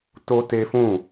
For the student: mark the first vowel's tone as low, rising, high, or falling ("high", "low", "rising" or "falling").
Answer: high